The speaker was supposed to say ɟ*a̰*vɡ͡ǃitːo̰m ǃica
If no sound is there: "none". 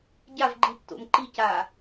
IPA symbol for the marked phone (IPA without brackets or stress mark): a